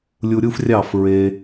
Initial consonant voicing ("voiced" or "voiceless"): voiced